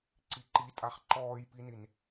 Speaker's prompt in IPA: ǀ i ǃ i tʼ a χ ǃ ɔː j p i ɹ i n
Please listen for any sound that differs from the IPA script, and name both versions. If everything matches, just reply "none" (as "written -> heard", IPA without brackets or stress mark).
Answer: ɹ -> n